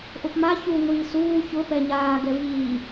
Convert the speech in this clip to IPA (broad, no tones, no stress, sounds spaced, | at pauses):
ʔ ʊ p m a ç u ŋʷ iː s uː ç ʊ p ɛ ɲ aː ɡ ɛ v iː